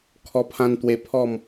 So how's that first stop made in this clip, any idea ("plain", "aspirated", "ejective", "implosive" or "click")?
aspirated